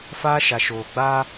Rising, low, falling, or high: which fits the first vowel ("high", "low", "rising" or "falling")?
high